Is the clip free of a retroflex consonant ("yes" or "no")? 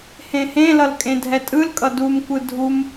yes